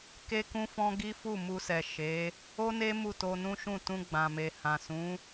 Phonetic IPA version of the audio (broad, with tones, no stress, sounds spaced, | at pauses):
k e˦ k ũ˦ f ɔ̃˦ ɡ i˦ f u˦˨ m u˧ s ɛ˨ ʃ e˨˦ | o˦ n e˦ m u˦˨ t o˧ n ũ˦ ʃ ũ˦˨ t ũ˧ ɡ͡b ã˨ m e˨ h ã˨ s ũ˨˦